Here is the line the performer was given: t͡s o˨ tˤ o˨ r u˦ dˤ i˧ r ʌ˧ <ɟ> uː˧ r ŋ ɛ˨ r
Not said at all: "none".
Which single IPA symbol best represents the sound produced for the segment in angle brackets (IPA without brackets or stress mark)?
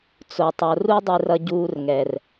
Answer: ɟ